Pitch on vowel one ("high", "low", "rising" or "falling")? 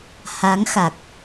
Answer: rising